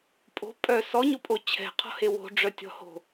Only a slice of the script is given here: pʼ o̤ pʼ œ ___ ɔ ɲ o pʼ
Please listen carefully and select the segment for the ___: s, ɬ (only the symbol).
s